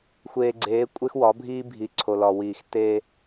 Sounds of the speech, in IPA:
xʷ eː˨ ɡ͡ǀ eː˨˦ kʷʼ e˦ x w ɒ˨˦ bʱ iː˦ bʱ i˨ ǀʰ o˨ l ɒ˨ w iː˨ x t eː˦

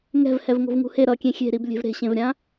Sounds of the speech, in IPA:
ŋ ɛ̤ v h ɛ v ŋ o̤ v ŋ ṳ h e ɾ ʌ kʲ ẽ xʲ e̤ ɾ i b lʲ e̤ v ɾ e̤ ɕ ẽ v ɾʲ ã

